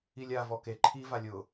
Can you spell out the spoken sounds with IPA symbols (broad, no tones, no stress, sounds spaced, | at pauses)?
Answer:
i lʲ a v ɔ k e ǃʰ i v a lʲ ʊ